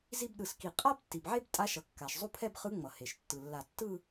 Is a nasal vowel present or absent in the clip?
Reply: absent